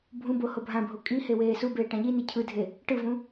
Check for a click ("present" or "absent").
absent